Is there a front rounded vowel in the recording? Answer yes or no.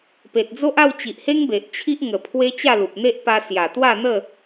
no